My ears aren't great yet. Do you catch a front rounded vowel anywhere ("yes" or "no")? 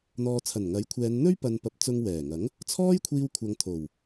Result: no